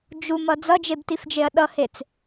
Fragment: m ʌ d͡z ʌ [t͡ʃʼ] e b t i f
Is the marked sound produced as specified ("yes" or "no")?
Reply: no